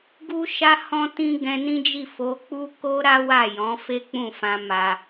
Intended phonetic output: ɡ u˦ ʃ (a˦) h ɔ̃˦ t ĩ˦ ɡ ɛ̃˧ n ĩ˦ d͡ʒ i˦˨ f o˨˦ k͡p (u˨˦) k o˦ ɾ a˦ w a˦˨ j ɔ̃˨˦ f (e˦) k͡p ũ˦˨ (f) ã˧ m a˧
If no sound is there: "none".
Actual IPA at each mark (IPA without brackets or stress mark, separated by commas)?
a˦, u˦, e˦, f